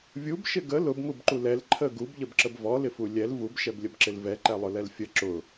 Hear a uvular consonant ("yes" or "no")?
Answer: no